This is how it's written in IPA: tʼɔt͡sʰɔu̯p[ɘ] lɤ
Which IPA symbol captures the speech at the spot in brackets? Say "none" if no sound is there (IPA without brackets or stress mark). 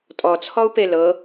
e